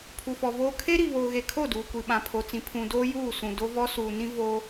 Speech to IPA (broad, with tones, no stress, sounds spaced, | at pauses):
pʰ u˨ f ɔ˨ v oː˦ kʰ e˦ ɾ i˨ β oː˨ ɣ e˨ kʰ o˦˨ d uː˨ kʷ i˨ ɓ ã˨ pʰ o˨ t͡s ĩ˨ pʰ ũ˨ d oː˦ j uː˦˨ s ũ˨ d o˦ v ɔ˦ s uː˨ n ĩ˦ v o˦